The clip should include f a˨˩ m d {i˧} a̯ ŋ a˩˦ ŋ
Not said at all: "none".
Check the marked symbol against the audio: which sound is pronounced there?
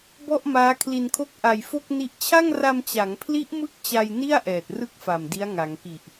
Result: i˦˥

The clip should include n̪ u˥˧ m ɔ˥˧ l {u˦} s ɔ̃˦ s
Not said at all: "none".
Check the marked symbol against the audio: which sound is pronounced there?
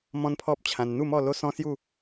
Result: o˦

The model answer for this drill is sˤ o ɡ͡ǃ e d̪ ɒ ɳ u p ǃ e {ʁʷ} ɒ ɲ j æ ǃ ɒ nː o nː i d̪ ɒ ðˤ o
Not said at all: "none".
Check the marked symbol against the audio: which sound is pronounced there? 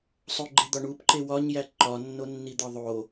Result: w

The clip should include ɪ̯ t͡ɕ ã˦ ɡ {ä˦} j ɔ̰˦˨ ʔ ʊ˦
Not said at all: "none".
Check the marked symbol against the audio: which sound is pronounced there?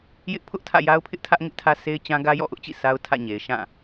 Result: ä˦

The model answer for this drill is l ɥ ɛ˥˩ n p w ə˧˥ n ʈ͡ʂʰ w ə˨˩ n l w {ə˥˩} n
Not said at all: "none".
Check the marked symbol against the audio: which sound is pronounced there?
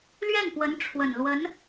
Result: ə˧˥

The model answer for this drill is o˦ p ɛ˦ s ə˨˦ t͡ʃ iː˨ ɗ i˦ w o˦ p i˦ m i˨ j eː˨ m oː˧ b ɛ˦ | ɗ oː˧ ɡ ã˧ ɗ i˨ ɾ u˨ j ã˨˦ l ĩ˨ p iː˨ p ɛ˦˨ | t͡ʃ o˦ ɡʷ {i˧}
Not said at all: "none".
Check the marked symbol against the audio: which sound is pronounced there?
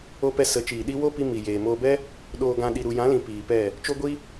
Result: i˦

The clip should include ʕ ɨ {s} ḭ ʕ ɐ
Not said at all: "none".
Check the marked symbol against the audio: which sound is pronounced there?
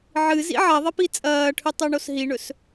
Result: z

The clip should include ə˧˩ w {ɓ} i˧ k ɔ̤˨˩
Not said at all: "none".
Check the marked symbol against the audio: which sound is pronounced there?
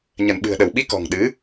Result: ɓ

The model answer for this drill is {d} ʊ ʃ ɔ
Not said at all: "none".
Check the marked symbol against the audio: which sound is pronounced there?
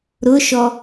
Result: ɾ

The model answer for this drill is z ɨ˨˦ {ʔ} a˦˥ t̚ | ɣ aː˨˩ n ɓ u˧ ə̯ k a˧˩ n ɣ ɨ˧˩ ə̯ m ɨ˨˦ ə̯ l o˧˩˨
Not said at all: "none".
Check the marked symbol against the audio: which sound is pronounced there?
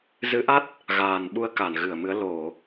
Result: ʔ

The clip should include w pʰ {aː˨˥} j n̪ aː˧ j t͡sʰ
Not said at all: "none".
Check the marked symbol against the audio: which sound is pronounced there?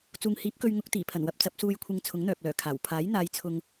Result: aː˨˥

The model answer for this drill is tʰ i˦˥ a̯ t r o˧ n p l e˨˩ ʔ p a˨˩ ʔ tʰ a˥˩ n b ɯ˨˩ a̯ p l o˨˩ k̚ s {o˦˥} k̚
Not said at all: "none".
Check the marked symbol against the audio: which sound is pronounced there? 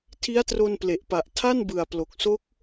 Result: o˦˥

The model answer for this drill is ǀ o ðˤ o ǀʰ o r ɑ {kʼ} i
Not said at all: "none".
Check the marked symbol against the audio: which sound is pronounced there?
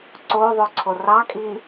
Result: kʼ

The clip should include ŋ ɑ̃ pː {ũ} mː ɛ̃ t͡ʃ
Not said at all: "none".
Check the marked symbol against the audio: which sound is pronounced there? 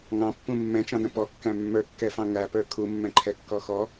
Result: ũ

